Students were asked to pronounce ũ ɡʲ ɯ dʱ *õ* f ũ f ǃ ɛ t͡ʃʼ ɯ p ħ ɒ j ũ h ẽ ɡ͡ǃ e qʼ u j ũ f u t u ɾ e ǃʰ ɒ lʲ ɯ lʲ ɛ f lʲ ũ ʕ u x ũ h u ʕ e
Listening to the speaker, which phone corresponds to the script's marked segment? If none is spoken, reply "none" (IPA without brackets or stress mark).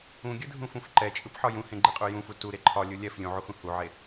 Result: ũ